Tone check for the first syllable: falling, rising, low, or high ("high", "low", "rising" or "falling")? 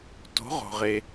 rising